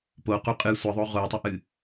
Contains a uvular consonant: yes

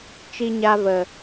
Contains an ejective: no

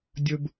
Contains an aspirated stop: no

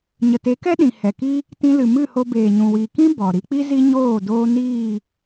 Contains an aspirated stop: no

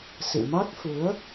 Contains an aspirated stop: no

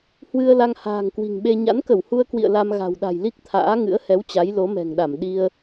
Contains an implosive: yes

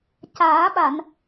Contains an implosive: yes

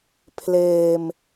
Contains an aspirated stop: yes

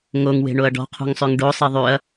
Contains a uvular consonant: yes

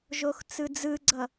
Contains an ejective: no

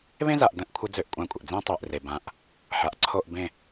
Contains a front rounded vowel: yes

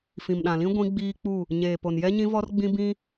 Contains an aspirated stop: no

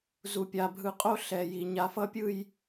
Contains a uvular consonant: yes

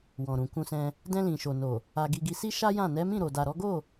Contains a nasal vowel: yes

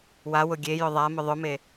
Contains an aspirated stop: no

